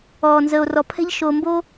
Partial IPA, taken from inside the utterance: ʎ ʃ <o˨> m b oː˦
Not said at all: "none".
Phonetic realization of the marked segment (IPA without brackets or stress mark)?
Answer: o˨